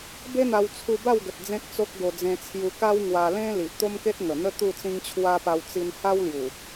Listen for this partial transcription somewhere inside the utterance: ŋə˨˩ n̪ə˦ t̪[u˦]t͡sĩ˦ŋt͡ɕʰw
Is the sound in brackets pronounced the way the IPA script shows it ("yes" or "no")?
no